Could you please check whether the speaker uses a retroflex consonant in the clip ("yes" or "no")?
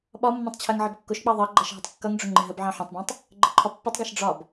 yes